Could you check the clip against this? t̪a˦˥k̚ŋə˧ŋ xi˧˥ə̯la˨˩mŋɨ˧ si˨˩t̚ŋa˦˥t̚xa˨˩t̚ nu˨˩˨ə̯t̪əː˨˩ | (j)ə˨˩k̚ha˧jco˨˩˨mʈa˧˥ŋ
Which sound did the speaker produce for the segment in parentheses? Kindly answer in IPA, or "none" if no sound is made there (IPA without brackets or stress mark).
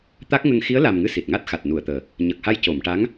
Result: ɲ